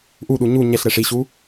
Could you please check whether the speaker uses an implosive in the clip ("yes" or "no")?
yes